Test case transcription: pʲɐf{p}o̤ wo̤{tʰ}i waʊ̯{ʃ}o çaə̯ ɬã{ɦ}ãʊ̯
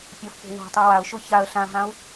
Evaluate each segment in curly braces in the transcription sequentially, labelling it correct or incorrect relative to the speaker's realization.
correct, incorrect: tˤ, correct, correct

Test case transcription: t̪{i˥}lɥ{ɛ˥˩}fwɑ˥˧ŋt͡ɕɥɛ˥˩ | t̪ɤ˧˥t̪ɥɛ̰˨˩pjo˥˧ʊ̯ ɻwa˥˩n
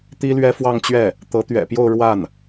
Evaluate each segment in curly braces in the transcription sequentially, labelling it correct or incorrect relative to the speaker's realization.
correct, incorrect: ɛ˥

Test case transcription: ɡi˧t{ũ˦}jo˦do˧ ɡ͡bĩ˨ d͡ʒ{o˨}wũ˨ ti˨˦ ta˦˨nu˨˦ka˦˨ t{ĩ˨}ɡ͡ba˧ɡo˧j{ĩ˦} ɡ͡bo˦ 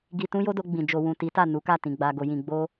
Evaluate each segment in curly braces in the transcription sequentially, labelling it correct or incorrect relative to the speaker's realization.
correct, correct, correct, incorrect: ĩ˧

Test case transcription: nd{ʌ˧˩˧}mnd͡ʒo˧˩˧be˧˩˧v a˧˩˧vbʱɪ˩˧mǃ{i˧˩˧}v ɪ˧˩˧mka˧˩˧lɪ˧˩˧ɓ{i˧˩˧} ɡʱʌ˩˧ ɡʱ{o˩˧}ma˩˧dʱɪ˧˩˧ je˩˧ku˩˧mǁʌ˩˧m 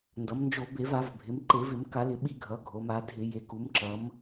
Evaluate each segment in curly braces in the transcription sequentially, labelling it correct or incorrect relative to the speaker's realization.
incorrect: ʌ˩˧, incorrect: e˧˩˧, correct, correct

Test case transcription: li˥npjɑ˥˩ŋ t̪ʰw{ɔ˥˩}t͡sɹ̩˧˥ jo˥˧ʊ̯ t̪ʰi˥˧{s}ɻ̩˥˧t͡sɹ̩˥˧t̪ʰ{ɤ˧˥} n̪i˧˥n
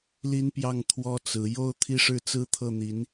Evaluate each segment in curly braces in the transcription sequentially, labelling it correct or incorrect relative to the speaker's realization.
incorrect: ɔ˥, incorrect: ʂ, incorrect: ɤ˥˩

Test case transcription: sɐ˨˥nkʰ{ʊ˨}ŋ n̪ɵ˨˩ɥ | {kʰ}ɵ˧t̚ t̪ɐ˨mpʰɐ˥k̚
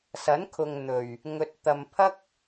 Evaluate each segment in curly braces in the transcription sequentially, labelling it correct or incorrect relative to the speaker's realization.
correct, incorrect: ŋ

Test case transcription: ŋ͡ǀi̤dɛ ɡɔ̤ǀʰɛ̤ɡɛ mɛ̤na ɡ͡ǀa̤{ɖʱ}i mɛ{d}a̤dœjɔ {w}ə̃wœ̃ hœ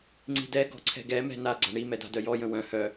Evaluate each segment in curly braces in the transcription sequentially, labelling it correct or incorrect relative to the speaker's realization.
incorrect: ɳ, correct, incorrect: j

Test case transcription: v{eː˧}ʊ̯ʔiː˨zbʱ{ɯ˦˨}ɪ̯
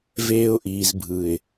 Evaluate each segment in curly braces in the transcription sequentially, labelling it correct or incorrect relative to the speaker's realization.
correct, incorrect: ɯ˨

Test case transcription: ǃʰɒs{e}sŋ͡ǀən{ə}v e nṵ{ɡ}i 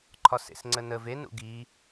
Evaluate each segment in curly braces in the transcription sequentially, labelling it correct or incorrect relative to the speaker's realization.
incorrect: ḛ, correct, correct

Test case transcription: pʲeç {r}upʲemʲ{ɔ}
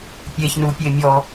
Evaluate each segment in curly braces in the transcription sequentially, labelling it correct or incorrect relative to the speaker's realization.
incorrect: n, correct

